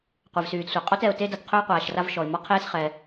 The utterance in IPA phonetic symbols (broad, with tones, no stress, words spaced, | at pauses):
qʷɛ˩vsyː˩d sʷɛ˩qʼɔ˥t ɛ˩ʊ̯ te˥da˩tqʰø˥ʊ̯ qʷaː˩ʃra˥vʃɔ˩ɪ̯ mɔ˥qʰeː˥sχɛ˩